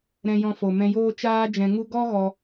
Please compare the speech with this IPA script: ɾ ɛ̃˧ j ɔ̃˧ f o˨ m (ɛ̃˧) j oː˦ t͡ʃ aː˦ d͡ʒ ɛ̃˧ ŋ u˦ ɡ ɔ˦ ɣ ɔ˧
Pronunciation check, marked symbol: correct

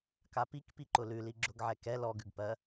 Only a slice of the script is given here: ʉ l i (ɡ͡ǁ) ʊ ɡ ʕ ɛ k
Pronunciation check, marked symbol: correct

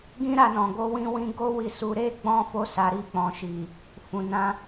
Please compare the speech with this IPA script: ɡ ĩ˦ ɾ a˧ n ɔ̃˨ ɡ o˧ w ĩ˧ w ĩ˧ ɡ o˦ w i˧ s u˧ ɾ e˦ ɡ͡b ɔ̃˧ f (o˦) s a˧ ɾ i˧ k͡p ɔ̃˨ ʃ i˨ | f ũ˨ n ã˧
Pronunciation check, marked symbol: correct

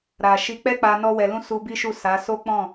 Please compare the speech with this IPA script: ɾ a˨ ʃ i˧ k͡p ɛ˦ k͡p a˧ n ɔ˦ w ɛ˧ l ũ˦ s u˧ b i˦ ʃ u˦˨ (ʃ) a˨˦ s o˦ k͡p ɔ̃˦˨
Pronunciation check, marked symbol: incorrect: s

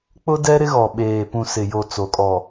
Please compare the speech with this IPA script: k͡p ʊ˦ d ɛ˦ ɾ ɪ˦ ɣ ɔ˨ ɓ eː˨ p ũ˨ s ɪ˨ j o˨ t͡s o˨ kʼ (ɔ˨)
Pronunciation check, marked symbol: correct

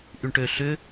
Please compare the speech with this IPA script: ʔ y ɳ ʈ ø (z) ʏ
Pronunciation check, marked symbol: incorrect: ɬ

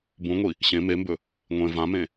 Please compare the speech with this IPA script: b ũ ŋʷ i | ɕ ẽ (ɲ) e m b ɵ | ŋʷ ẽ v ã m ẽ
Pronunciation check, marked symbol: incorrect: m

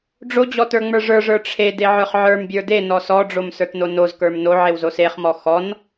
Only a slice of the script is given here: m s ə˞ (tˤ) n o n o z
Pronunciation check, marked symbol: incorrect: t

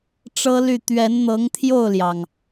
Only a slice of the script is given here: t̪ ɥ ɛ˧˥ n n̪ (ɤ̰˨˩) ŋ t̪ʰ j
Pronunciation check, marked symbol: incorrect: ɤ˧˥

